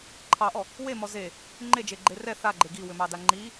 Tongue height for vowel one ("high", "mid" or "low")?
low